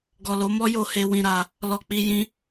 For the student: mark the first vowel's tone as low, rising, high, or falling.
low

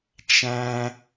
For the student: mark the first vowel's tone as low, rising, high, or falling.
high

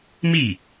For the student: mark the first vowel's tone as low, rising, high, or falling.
falling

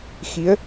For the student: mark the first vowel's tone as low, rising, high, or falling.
rising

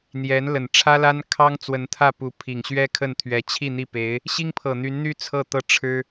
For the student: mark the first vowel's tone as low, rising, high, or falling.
rising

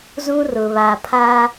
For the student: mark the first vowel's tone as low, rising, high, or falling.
high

